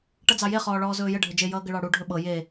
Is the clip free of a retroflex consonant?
no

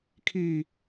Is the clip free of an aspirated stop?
no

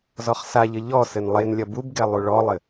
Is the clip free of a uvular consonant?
no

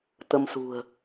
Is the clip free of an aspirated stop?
yes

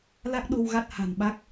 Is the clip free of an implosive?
no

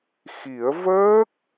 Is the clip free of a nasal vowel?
yes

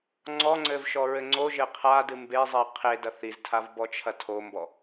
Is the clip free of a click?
no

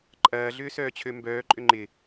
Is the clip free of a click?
no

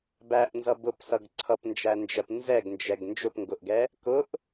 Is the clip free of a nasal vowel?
yes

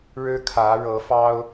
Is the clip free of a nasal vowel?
yes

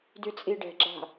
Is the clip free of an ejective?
no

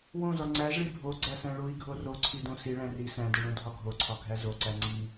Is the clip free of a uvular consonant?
yes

